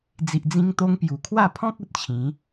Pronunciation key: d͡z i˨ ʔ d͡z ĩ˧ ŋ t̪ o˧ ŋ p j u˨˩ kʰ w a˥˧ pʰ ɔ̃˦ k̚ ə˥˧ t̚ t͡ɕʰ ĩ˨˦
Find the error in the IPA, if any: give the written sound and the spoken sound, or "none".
ə˥˧ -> ə˨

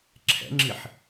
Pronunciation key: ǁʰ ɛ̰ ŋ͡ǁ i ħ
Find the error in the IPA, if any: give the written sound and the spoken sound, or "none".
none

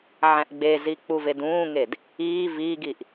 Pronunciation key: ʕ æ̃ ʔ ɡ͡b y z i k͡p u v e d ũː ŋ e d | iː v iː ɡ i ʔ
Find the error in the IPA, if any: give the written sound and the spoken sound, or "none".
y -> e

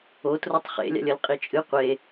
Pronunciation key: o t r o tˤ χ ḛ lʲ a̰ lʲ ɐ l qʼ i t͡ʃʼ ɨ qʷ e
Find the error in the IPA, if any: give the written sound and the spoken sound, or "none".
none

